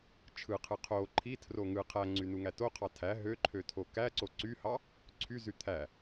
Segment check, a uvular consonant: present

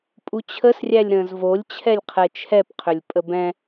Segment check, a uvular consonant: present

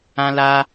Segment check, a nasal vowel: present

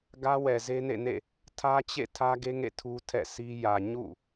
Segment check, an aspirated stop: present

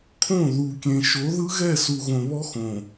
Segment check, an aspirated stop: present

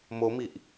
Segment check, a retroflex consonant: absent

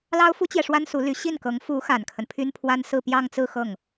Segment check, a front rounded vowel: present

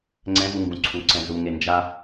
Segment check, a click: present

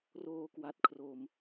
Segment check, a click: absent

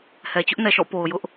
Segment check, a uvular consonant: absent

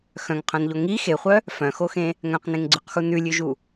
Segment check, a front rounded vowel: present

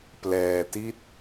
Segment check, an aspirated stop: absent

